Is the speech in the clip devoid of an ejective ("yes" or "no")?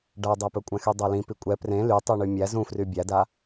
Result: no